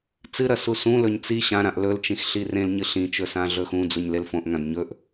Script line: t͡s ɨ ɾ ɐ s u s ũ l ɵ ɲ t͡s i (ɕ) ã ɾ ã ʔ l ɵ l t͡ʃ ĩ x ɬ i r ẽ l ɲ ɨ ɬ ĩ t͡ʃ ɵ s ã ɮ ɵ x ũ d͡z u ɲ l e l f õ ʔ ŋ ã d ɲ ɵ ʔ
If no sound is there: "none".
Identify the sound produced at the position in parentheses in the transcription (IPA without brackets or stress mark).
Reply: ɕ